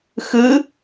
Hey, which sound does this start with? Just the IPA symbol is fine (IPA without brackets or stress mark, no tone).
x